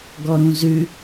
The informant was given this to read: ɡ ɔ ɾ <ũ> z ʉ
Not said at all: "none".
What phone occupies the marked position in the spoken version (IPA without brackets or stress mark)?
ũ